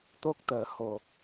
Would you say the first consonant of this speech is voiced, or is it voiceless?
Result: voiceless